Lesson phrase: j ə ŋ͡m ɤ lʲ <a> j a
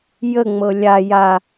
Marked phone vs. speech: correct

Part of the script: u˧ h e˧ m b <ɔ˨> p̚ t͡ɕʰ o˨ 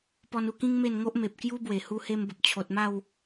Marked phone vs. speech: incorrect: ə˨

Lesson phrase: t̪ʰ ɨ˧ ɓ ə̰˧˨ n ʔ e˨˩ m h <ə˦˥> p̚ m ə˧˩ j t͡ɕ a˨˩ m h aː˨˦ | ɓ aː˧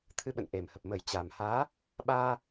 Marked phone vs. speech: incorrect: ə˨˩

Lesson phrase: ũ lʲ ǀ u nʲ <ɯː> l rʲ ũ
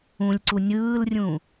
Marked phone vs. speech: correct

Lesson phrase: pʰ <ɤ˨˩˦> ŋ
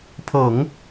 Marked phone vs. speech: correct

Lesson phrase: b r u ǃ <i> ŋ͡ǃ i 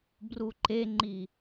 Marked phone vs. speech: incorrect: e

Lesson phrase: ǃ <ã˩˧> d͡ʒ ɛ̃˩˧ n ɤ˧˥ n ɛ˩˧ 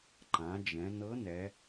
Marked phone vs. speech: correct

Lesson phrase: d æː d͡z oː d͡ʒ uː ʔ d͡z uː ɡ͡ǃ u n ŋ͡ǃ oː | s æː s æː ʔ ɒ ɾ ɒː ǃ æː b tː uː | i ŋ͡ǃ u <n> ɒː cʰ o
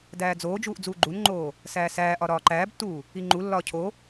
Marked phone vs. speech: incorrect: lː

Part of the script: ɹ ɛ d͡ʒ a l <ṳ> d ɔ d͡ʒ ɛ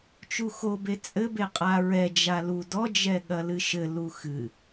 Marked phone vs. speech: incorrect: u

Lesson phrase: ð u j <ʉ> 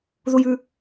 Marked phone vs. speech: correct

